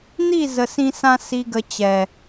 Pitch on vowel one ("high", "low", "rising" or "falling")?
falling